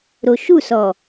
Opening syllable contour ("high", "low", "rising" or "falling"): low